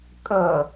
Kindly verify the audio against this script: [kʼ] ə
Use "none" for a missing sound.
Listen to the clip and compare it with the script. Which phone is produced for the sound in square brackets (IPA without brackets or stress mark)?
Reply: kʼ